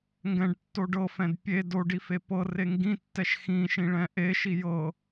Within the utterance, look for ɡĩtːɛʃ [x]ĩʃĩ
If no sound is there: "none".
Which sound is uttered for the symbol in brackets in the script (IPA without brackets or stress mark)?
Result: x